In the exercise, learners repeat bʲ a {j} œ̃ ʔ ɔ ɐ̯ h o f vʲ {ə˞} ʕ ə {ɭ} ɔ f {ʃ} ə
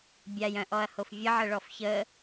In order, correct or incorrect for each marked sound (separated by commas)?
correct, incorrect, correct, incorrect